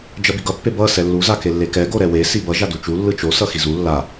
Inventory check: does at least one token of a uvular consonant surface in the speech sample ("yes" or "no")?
no